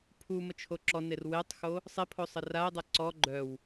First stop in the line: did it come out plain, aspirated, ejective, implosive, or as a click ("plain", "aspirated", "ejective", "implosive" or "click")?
aspirated